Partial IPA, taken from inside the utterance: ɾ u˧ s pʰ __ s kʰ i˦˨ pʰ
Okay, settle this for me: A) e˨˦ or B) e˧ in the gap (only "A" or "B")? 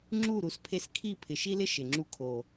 B